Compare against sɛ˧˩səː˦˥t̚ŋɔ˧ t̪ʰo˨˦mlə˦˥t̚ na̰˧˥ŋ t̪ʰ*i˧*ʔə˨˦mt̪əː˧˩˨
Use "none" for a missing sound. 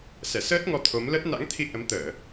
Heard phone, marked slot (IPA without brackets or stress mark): i˧